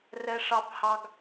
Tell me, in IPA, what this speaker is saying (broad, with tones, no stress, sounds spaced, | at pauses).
r ɛ˦ ʂ ɑ˦ p h ɑ˦ ɡ